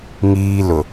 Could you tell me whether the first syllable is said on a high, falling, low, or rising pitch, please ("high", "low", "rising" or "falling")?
high